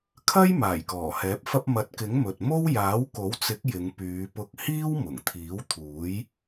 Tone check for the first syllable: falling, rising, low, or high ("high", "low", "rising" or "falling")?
high